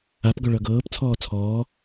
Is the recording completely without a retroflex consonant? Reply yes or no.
no